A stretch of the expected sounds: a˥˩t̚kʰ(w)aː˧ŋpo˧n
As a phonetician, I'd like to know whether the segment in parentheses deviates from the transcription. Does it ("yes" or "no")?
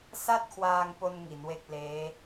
no